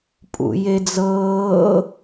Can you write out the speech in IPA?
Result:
pʼṵjed͡zɤː

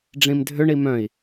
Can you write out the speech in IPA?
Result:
ɖ͡ʐĩmdʱʏɳi mœ̃i̯

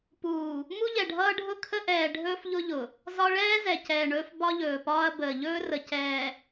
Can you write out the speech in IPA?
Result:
puː˨ | mu˦ʎɛ˨ɖʱʌː˦ ɖʱʊ˦ kʰə˦ʔɛː˨ ɖʱɵː˦fʎʊ˦ʎʊ˨ | zɒ˦ ɭɛː˦ zɛ˨cɛː˨ɳɵː˦f bɒ˦ʎɵː˨pɒː˦ɐ̯ bəː˨ʎɵː˦rə˨ cɛː˨

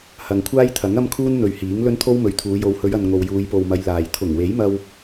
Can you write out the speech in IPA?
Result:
hɐ˨ŋkʷʰaː˥jt̪ʰɐ˨˥ŋ ɐ˥mkʰuː˥nn̪ɵ˨ɥ hiː˨˥ŋ lɵ˥nt̪ʰo˥wmɵ˨ɥt̪ʰuː˨˧ jo˨˧whɵ˨˧ɥɐ˨n ŋo˨wjuː˨˧jpo˨wmɐ˨˧j laː˨j t̪ʰʊ˨˩ŋwe˨˥jmɐ˧w

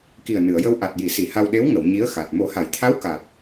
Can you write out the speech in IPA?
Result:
ki˨˩ə̯ nɨ˨˩˨ə̯jə˧w ʔa˨˩t̚ji˨˩˨si˨˩˨ ha˧w ɗe˧˥wŋə˨˩˨w ɲi˧˥ə̯xa˨˩t̚ mo˨˩˦ha˨˩˨jt̪ʰa˧˥w ka˨˩t̚

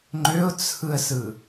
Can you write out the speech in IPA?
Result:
ŋ͡ǃøʊ̯t͡sʰɯə̯sɯ

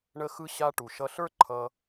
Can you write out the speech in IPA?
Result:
ɳə˧xɯ˧ɕa˧ ʈu˩ʃʌ˧ɬə˞˥ǃʰʌ˧

